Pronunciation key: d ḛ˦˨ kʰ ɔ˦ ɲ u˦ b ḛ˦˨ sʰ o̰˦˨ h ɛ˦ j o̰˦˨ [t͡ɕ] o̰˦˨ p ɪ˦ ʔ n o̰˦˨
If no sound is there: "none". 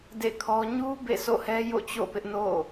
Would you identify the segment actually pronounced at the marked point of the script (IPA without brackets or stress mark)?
t͡ɕ